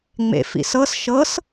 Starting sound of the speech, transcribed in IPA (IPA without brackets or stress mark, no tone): ŋ͡m